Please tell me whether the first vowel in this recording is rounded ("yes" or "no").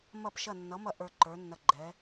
no